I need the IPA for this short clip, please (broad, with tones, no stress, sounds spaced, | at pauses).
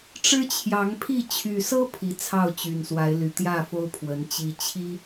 ʈ͡ʂ ɻ̩˦ t͡ɕʰ j ɑ˨˦ ŋ pʰ i˥˨ t͡ɕʰ y˨˩ s ɤ˦ pʰ i˨˦ t͡sʰ ɑ˥˨ ʊ̯ t͡ɕ y˨˩ n s w a˨˦ ɪ̯ l y˨˩ t̪ j ä˥˨ f o˦ ʊ̯ pʰ w ə˨˦ n t͡ɕ i˨˩ t͡ɕʰ i˦